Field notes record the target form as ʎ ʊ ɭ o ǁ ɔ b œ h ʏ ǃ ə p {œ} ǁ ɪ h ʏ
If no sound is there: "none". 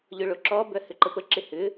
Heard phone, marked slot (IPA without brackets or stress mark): ə